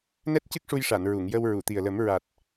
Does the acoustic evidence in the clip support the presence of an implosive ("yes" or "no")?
no